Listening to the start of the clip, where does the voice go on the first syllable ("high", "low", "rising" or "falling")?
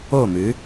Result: falling